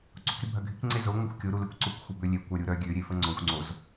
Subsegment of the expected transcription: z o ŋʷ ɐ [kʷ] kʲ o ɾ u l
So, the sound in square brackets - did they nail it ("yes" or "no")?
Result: no